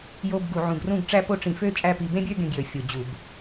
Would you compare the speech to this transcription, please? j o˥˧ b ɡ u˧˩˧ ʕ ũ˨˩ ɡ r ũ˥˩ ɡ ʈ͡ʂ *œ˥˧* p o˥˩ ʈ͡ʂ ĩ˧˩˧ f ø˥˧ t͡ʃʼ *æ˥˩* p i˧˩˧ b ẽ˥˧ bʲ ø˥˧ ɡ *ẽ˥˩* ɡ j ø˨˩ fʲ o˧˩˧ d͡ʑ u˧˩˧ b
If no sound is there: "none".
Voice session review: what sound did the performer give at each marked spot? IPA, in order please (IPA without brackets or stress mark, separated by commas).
æ˥˧, æ˥˩, ẽ˥˩